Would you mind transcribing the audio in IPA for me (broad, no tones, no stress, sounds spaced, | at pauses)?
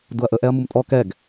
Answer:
d u ɐ̯ ʔ ə ʔ ɛ ɐ̯ m u m tʼ ɔ k ɛ ɡ